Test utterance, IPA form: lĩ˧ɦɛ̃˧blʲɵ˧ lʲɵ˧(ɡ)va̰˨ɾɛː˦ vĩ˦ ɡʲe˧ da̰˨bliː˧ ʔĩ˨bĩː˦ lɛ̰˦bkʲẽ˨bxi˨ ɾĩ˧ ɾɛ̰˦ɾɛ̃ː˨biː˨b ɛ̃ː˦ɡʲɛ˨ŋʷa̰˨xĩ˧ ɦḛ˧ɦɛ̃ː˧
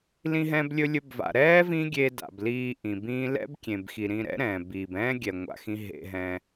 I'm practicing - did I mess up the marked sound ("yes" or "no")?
yes